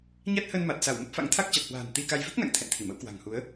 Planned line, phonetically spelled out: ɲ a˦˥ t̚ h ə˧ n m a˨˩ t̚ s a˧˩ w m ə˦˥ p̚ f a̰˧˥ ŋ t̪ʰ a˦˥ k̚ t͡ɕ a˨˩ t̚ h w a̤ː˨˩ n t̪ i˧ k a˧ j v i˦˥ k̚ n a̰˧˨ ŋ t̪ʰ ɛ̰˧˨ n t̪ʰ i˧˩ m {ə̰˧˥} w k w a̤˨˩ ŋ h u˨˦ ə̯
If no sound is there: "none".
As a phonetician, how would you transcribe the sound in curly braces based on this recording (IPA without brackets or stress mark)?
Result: ə̰˧˥